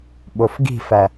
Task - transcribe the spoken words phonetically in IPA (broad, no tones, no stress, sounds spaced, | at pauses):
ɓ o f ɡ i̤ f æ